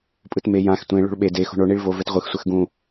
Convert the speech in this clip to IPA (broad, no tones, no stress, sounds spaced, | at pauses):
pʼ ɯ t m e j ã x tʷ ẽ ɭ o̤ ɭ ɓ e d e x o̤ ɳ o ɳ i ɭ v o v ɛ t ʁʷ ɯ x sʷ ɛ x ɡ ũ